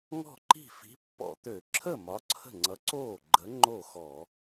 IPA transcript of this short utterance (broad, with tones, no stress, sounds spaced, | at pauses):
ŋ ɔ̤˥˩ ǃ i̤˥˩ f i̤˨˥ pː ɔ̰˧˩˧ t̪ ø˧˩˧ ǁʰ ə˥˩ m ɒ˨˥ ǀʰ ə̤˥˩ ŋ͡ǀ ʌ˨˥ ǀ oː˥˩ ɡ͡ǃ ə˨˥ ŋ͡ǃ o˥˩ x ɔ˧˩˧